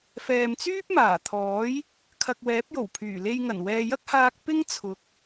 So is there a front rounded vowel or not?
yes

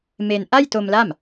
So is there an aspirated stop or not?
no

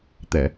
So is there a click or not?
no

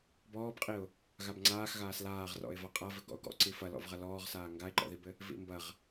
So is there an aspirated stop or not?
no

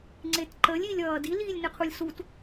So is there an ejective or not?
no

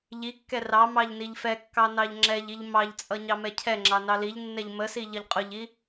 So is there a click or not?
yes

